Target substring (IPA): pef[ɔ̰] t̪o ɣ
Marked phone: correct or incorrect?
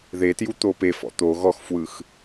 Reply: correct